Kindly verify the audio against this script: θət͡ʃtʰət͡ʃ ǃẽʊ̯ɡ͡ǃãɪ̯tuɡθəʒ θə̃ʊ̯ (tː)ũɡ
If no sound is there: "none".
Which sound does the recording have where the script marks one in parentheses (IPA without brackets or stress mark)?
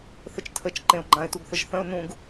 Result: n